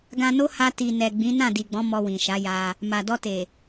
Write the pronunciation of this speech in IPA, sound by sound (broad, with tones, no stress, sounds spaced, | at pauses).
ɡ ã˧ n o˦ h a˧ t i˨ n ɛ˨ ɡ͡b ĩ˨˦ n ã˦˨ d i˨ ɡ͡b ɔ̃˨˦ m ɔ˧ w ĩ˨ ʃ a˨˦ j a˧ | m a˨ d ɔ˧ t e˨